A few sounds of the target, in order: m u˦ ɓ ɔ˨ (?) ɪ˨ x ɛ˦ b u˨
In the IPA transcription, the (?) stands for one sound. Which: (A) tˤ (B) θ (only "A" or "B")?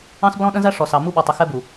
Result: A